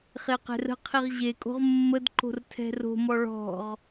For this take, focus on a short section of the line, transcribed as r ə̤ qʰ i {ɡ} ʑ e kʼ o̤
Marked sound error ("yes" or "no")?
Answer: yes